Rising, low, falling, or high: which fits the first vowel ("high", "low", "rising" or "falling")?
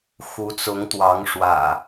rising